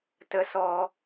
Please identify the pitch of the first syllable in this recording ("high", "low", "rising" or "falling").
high